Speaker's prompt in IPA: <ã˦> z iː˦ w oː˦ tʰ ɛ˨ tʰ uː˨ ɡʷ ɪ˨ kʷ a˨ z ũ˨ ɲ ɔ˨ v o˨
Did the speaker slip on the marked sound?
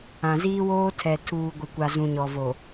yes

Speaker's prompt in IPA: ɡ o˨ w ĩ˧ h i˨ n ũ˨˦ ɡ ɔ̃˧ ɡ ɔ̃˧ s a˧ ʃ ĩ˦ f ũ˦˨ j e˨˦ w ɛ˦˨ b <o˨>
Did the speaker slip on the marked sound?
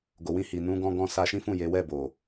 no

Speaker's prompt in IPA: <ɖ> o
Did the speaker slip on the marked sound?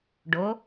no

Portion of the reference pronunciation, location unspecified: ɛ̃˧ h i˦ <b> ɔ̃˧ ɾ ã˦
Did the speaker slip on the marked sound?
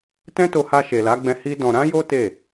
yes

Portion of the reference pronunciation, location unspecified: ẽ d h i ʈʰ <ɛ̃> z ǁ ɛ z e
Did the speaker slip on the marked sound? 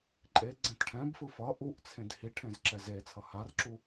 yes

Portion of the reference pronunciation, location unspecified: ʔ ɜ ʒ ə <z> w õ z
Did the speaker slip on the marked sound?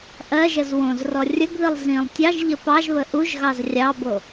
no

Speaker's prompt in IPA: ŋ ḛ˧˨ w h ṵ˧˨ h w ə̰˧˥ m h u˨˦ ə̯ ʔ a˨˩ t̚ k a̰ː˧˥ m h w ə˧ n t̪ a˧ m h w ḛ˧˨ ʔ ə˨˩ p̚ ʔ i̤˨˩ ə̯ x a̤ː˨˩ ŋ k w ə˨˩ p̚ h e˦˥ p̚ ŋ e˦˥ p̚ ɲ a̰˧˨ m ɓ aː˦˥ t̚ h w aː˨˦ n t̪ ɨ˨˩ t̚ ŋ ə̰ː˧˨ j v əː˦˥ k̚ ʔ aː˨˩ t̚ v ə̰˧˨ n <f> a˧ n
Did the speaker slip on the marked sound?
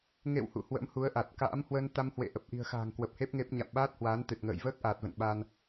yes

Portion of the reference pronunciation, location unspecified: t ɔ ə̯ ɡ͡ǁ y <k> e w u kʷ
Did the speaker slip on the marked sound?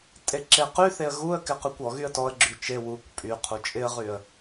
yes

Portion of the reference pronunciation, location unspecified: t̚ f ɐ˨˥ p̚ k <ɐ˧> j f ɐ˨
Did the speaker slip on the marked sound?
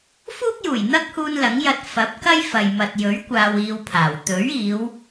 yes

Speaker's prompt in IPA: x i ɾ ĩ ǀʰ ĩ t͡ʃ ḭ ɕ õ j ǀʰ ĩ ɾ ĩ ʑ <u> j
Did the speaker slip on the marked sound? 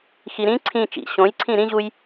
no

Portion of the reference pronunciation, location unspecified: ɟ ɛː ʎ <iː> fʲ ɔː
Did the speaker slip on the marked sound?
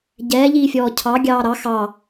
no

